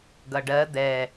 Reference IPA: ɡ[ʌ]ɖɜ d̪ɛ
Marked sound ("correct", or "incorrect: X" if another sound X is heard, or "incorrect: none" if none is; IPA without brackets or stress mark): correct